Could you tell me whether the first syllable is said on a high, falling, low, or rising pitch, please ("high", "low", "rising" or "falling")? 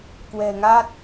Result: low